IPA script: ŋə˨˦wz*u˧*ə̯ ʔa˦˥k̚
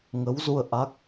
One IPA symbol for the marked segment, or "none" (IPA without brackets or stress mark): u˧